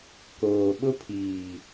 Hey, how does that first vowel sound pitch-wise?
low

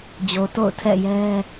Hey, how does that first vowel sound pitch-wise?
low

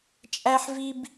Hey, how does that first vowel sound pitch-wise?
high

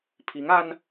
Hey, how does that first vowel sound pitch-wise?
rising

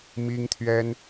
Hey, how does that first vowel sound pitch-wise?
high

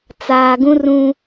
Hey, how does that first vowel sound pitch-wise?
low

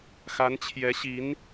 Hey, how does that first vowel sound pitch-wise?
rising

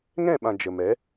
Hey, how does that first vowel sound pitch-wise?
falling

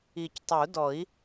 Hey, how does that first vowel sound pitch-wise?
low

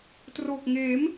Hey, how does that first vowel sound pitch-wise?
low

